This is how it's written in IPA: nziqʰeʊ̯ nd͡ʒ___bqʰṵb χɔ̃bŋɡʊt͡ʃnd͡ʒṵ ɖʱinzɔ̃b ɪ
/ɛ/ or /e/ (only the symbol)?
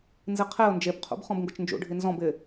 e